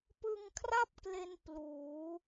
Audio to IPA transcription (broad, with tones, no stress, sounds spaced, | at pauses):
p ɯ˧ ŋ kʰ r a˥˩ p̚ k l e˧ n p l uː˩˦